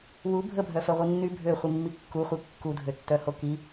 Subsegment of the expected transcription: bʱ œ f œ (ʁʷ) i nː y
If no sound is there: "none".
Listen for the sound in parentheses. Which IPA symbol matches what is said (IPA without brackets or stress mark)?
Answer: ʁʷ